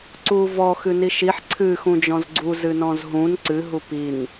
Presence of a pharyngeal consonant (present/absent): present